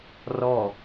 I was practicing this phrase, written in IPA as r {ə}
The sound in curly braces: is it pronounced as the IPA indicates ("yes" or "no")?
no